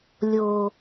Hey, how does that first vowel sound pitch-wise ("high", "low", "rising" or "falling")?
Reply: low